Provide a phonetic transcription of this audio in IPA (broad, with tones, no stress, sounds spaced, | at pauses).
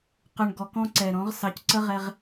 q ʏ˨ ɳ ɡ ɔ˨ k ɔ̃˦ ǀ ɛ˨ ɾ ɔ̃˨˦ ʁ s ɑ˨ c ǀ ə˦ ʁ ɛ˦ ʁ